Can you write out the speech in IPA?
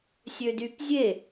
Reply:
sʲ ø d y p zʲ e

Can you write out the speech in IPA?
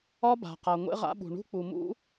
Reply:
ɒ˦ b a̤˨ q a˨ ŋʷ ḛ˦ ʁ a̰˦ ɓ ṳ˨ ɳ ṳ˦ k͡p u˨ m ṵ˦

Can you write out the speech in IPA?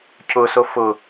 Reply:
cʰ ʊ s o f ʊ

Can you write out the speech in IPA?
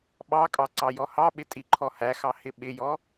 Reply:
ɓ ɑ kʼ ɑ ǀ ɑ j ɔ h ɑ ɓ ɪ tʼ i ǃʰ ɔ h æ x ɑ h ɪ ɓ ɪ j ɔ

